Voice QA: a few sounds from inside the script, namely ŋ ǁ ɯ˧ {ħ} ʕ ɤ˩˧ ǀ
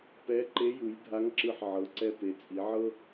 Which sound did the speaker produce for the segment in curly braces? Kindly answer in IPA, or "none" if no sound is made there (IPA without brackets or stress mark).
ħ